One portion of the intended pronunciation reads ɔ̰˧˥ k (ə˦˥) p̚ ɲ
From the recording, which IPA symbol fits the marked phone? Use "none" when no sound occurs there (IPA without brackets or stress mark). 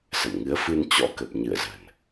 ə˨˩